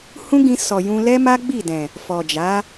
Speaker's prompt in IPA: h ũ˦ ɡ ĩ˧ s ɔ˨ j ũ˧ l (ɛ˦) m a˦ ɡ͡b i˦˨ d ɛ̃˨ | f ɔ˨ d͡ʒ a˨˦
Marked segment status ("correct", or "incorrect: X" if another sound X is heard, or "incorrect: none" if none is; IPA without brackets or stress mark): correct